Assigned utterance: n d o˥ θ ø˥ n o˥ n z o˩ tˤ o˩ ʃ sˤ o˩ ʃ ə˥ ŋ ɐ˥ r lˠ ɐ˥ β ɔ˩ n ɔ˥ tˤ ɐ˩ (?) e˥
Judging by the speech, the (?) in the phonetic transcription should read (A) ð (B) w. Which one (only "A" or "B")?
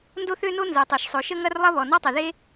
A